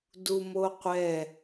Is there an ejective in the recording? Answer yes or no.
no